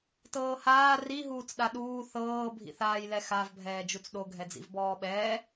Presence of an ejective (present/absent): absent